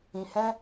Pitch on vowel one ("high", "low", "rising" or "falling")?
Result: low